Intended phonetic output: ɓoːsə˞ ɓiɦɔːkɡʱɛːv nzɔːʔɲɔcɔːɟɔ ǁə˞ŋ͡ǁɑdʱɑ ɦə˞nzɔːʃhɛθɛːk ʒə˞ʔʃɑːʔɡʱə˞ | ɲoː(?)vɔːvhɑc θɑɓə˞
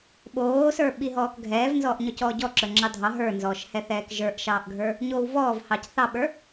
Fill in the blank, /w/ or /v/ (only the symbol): w